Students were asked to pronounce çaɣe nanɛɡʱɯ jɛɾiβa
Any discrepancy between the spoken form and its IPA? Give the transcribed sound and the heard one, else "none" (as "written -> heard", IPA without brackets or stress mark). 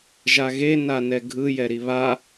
ç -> ʒ